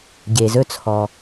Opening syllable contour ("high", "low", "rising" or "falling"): low